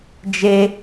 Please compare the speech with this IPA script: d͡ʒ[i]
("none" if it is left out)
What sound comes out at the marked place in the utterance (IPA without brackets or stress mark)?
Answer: e